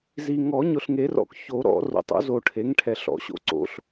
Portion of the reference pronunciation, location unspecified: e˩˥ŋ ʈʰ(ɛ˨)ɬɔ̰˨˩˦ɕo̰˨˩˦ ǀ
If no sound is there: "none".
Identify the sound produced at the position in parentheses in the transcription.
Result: ɛ˨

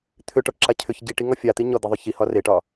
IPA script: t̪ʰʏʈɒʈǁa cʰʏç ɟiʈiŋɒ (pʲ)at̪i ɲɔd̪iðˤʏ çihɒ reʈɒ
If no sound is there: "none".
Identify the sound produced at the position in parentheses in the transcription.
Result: fʲ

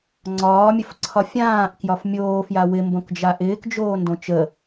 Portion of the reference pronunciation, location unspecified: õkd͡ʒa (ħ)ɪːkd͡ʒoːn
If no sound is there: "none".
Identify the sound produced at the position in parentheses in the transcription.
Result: ʔ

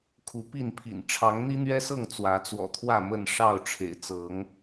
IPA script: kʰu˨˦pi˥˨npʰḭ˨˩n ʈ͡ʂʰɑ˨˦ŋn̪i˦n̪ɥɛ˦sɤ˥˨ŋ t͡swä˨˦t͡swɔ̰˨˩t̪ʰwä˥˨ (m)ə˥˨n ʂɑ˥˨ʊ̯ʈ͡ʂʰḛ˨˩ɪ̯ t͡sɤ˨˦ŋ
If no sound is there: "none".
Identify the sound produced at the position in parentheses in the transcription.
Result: m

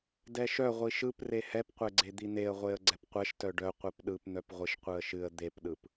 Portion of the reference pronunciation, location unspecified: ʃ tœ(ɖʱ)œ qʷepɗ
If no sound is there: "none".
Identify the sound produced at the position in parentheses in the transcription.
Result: ɖ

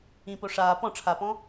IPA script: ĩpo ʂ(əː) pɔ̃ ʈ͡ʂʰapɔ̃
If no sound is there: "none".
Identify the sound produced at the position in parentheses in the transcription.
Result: aː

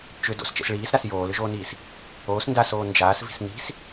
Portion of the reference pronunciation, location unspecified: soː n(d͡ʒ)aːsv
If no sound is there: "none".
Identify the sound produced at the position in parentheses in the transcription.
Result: d͡ʒ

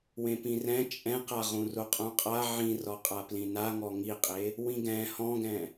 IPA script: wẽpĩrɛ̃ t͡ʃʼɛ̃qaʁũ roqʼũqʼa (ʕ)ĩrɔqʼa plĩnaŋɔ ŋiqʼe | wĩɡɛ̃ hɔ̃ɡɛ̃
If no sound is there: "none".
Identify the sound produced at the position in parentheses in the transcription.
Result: ʕ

